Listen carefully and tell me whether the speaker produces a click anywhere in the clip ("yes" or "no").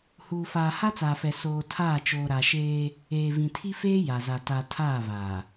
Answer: no